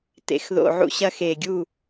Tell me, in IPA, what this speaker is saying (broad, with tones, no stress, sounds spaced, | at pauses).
t ḛ˨˩˦ x ð o̰˨˩ ʕ ṵ˦ ɕ ɐ˦ x e˨˩ ɡʲ u˥˩